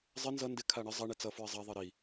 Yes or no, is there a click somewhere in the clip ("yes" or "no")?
no